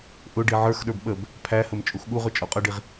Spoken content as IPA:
ʔ ʊ ɖ i ʕ ə˞ x ɗ ə˞ b ɓ ə b | pʰ æ h ə m t͡ʃʼ u x ɠ u ʁ ʊ t͡ʃʼ ɔ qʼ ʌ ɖ i ʁ

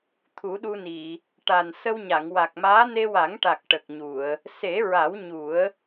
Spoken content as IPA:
t̪ʰ u˨˩˦ ɗ u˧ n i˨˩˨ | ʈ a˨˩ n s ə˧ w ɲ a˨˩˨ ŋ w a˨˩ k̚ m aː˧˥ n e˧ w a˨˩˦ ŋ ʈ a˨˩ k̚ ʈ ə˨˩ k̚ ɲ u˨˩˨ ə̯ | s e˨˩˦ ɹ a˨˩˦ w ɲ u˨˩˦ ə̯

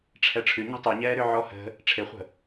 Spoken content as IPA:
ʈ͡ʂʰ ɛ ʈ͡ʂʰ ʉ ɲ ɛ̤ tˤ ʉ ɲ ɛː ɾ ʏ ʕ ɔ h ə̤ | ʈ͡ʂʰ e χʷ ə̤

